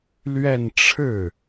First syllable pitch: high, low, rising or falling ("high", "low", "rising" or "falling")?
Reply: falling